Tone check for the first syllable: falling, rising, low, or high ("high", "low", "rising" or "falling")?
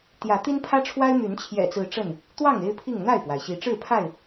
rising